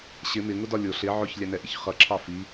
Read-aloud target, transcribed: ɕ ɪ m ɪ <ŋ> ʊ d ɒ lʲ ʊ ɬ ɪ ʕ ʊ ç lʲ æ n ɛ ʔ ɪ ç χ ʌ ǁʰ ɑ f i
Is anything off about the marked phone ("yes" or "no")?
no